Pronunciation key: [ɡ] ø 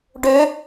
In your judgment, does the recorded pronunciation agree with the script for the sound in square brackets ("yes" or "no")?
no